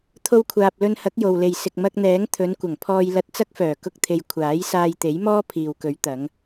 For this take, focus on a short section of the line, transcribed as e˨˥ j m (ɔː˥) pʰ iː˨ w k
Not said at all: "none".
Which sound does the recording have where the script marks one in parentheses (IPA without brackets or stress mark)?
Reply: ɔː˥